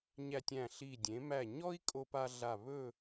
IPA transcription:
ɲ æ˧ tʲ æ̃˧˩ ɬ i˧˩ dʲ ẽ˩˧ m æ˧˩ ɲ ɔ˥ i̯ kʼ o˧ p a˧ ɮ a˧˩ β ɵ˥˧

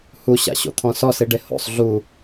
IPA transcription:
h u ɕ a̰ ɕ o̰ t̪ʰ ɔ̃ s ɔ s i ɖ e h o̰ sˤ ɮ u

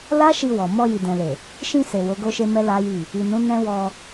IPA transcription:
l a˦ ʃ i˧ w ɔ˨ m ɔ˧ j i˨ d ɛ̃˨ l e˨ | ʃ ĩ˧ s e˨ w o˨˦ ɡ o˦ ʃ e˦ m ɛ˦ l a˦ j i˦˨ | i˨ n ũ˨˦ n ɛ̃˦ w ɔ˧

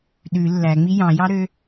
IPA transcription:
ɗ ʉ lː æ ŋ͡m i j ɑ̃ j ɑ ɾ ø

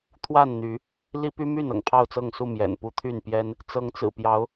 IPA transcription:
t̪ʰ w a˥˨ n n̪ y˨˦ | l i˦ p y˦ m y˥˨ n ɤ̰˨˩ ŋ pʰ ɑ˥˨ ʊ̯ t͡s ɤ˥˨ ŋ s u˥˨ m j ɛ̰˨˩ n p u˦ t̪ʰ y˥˨ n p j ɛ˦ n | t͡s ɤ˨˦ ŋ t͡s ɹ̩˨˩ p j ɑ˨˦ ʊ̯

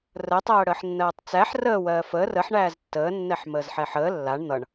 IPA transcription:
r əː tˤ ɜː ɽ əː ħ nː ɜː tˤ t͡s æ ħ r əː w ɜː f əː r ə ħ ɳ æː z tː əː nː ɛ ħ m əː z ħ ɛ ħ əː lː a ɳ n̪ ʌ ɳ

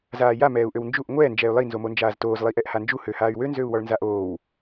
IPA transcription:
z aː j a m ɛː u̯ ʔ ø w n d͡ʒ u ʔ ŋʷ ɛː n d͡ʒ ɛː y̯ lˠ i n z o m o n d͡ʒ aː z t oː z lˠ i ʔ ɛ ʔ h a n d͡ʒ u h ø h aː y̯ w ø n z ø u̯ w ɔ ɭ n z a ʔ oː w

